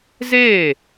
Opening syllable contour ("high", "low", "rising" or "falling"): falling